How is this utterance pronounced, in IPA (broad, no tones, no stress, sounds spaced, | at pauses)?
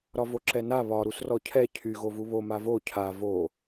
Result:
ɾ ɒ v o ǁ ɛ n a β ɒ ɾ u s r ɔ cʰ ɛ cʰ y ɣ o v u β o m a v o cʰ a v o